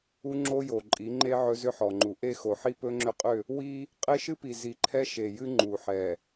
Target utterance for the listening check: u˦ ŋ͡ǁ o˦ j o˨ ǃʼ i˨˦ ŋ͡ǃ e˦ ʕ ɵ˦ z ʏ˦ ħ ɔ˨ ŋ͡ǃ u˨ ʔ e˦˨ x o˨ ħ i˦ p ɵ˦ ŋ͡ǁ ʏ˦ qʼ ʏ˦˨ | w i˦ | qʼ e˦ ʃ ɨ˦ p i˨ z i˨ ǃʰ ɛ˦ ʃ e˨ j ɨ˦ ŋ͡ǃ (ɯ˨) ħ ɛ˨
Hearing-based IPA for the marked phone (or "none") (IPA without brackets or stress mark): u˨